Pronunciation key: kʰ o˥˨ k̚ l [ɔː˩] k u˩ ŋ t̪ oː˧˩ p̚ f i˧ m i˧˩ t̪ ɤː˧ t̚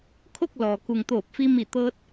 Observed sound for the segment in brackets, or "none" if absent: ɔː˩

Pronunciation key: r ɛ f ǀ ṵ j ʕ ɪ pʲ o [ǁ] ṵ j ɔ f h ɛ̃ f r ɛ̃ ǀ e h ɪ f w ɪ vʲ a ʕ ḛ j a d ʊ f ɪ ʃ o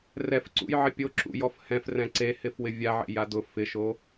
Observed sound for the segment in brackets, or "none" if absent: ǁ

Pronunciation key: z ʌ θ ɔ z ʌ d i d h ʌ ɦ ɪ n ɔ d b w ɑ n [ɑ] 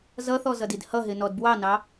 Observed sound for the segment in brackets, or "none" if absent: ɑ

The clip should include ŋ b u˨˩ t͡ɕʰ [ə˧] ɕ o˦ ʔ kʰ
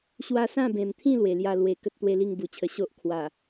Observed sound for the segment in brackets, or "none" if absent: ə˧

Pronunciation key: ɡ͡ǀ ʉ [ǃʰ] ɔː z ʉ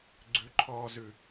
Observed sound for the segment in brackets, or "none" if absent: ǃʰ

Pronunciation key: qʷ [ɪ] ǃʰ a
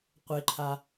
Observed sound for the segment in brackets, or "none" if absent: ɪ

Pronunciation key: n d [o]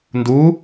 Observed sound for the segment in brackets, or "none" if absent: u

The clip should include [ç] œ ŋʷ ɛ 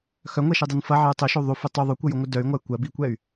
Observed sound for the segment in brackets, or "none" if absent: x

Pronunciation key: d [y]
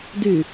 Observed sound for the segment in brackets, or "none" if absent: y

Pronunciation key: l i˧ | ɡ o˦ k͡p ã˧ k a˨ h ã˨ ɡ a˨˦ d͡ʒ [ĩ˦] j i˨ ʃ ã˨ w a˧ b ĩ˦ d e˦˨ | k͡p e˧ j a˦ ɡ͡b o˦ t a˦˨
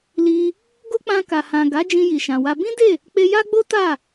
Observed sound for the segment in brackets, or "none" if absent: ĩ˧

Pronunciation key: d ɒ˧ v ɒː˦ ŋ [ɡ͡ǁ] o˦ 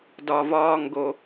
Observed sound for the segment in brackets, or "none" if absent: ɡ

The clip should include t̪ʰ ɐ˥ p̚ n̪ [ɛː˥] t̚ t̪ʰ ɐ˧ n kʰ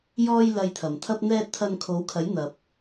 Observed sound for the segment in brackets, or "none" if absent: ɛː˥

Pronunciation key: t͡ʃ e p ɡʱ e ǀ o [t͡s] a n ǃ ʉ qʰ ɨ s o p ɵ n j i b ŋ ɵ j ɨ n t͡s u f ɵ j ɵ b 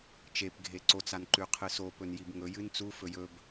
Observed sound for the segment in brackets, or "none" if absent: t͡s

